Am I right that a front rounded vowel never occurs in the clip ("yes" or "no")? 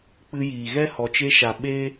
yes